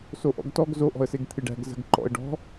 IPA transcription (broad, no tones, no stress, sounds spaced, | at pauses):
s o ʔ ɔ̰ ɡ t ɔ ɡ z o ʔ ɔ̤ ə̯ s e ɡ t̪ʰ ɨ ɖ æ̤ ɡ z ə̤ ɡ ǃ ɔ̰ ə̯ ɖ ɔ̤